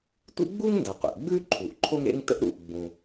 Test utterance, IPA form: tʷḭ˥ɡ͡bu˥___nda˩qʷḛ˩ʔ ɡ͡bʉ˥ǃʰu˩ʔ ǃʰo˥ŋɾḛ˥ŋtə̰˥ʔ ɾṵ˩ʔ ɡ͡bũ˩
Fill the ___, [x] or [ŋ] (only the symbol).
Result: ŋ